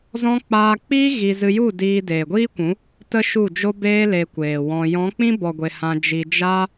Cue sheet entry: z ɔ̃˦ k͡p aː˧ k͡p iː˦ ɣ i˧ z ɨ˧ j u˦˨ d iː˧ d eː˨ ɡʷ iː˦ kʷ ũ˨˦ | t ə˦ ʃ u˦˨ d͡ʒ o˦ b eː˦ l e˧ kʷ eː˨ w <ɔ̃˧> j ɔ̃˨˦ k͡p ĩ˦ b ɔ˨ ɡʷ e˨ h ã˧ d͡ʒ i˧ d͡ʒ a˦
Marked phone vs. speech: correct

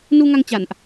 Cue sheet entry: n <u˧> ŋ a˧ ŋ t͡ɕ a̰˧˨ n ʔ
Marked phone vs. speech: correct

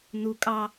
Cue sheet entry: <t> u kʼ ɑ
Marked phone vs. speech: incorrect: n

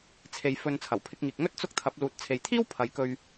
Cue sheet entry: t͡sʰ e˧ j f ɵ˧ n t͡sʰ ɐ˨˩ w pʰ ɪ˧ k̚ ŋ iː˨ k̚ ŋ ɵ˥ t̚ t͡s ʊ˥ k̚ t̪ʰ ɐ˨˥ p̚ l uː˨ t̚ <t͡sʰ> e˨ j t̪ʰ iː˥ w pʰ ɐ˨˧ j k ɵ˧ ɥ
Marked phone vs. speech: correct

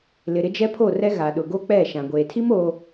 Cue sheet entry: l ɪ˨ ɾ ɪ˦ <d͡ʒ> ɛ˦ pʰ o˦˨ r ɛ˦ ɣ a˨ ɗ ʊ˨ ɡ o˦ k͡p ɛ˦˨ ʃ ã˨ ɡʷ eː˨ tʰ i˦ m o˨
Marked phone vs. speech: correct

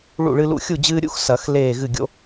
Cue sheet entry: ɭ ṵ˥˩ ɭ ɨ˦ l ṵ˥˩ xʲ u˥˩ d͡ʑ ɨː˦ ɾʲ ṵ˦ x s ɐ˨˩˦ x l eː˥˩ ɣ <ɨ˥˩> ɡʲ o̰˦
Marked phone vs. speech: correct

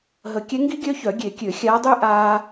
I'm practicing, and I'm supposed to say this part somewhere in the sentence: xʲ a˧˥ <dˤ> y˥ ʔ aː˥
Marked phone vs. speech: correct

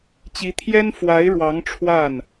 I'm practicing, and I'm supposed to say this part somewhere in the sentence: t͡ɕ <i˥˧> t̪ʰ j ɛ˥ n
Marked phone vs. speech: incorrect: i˧˥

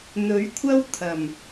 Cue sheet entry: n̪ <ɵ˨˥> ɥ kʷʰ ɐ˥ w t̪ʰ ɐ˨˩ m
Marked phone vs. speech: correct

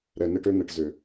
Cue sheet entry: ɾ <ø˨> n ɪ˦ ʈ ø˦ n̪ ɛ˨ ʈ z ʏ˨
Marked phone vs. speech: incorrect: ɛ˨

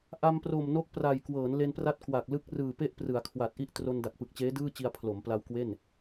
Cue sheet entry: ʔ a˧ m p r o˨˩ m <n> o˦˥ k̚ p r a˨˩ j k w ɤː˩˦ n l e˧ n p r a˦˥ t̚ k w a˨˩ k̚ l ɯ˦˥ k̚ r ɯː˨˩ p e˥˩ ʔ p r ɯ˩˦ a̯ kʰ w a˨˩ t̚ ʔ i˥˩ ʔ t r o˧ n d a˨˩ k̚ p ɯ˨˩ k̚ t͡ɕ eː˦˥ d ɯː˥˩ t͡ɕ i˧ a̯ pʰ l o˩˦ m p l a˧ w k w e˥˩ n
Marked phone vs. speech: correct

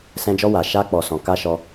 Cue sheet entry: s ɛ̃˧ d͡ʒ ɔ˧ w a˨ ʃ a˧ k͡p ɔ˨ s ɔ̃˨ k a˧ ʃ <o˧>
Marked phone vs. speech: incorrect: ɔ˧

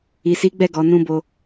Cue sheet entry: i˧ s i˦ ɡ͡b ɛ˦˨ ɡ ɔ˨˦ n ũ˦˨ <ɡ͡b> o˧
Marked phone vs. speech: incorrect: b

